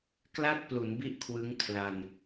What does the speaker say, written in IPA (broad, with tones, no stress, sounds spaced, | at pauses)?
k l a˥˩ t̚ p l u˩˦ n b i˥˩ ʔ kʰ w ɯ˦˥ ŋ kʰ l a˧ n